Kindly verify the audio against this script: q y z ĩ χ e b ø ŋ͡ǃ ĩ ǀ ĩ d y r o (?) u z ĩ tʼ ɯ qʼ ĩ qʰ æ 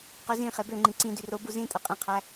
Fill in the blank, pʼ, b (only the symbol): b